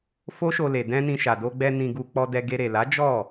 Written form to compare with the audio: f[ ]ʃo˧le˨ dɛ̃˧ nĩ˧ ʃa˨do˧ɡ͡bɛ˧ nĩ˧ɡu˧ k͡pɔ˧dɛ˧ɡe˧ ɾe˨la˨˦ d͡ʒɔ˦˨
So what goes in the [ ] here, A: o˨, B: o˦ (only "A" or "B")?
B